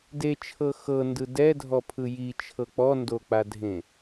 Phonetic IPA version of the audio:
d e t͡ʃʰ ɤ x ɤ n d ɯ d ɛ dʱ ɔ pʰ ɯ j i t͡ʃʰ ɤ k͡p ɔ n d o k͡p a dʱ ẽ

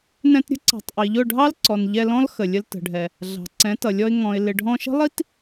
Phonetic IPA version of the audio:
n ɛ̃˧ t ɾʲ ə̤˦ ǀ ɑ̤˨ tˤ ʔ i˨ ʎ ʊ˦˨ ɖʱ ɑ˦ l ǀ ɔ˨ n ʎ ɛ˧ l ɔ̃˦ l x ə˨ lʲ ə˧ l t ə̤˨ ɖʱ ɛ˨ | ɮ ɑ̤˨ ǀ ɛ̃˨˦ t ʌ˨ lʲ ɔ˧ ɪ̯ ŋ ɔ̃˨ ɪ̯ l ɪ˨ ɖʱ ɔ̃˧ ʃ ə̤˦ lˠ i˦ t

